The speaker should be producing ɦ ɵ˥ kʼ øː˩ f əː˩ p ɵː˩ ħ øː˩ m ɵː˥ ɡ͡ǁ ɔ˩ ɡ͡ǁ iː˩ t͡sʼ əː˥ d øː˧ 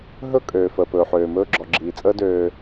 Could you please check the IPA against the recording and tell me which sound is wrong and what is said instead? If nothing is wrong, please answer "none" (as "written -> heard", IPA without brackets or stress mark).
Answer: none